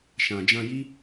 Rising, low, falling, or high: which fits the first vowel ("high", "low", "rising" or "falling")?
low